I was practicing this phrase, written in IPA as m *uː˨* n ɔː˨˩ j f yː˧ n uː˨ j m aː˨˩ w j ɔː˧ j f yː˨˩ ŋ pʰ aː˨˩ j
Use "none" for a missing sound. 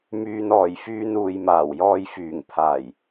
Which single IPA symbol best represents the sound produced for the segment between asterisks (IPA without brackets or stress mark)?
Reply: yː˨